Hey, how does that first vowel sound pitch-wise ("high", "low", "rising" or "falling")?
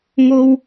high